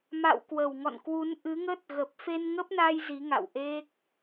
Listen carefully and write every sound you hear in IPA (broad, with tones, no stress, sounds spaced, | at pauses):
m a̰˧˨ w k w ə˧˩ w ŋ ɔ̰˧˨ n k w u˨˦ n ʔ ɨ˨˦ ŋ ə˦˥ t̚ ɣ ə˨˩ p̚ f e˧ n ŋ ə˦˥ p̚ n a˧ j z i˨˦ ŋ a̰˧˨ w ʔ e˦˥ k̚